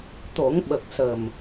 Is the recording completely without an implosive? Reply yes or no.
no